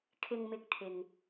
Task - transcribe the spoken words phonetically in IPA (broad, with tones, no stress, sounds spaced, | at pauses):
kʰ ɪ˧ ŋ m ɪ˧ k̚ t̪ʰ ɪ˨ ŋ